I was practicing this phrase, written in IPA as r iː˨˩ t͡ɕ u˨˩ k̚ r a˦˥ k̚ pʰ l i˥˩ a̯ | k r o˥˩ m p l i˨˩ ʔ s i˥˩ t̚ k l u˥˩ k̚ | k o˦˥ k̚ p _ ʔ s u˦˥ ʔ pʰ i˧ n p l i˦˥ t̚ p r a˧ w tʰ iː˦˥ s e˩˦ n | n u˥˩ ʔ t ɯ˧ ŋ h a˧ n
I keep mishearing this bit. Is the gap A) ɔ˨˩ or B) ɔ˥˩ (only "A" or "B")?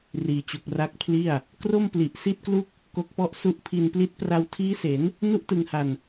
B